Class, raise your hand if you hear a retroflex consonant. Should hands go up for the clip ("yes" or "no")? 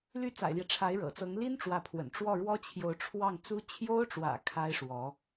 yes